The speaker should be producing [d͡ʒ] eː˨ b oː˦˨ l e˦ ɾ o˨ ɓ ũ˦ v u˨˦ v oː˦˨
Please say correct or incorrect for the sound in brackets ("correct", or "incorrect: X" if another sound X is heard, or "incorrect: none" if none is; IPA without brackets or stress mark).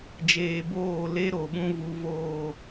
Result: correct